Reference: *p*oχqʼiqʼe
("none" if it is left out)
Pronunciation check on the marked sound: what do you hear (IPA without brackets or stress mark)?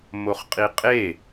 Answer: m